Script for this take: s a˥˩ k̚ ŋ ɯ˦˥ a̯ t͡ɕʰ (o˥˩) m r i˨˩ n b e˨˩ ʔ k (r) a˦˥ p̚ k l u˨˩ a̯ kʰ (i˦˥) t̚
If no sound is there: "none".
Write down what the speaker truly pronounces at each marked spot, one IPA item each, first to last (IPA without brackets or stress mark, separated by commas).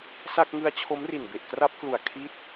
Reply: o˦˥, r, i˦˥